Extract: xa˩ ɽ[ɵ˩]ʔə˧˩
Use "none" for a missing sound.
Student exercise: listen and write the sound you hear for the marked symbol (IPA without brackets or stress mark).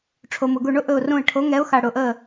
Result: ʊ˩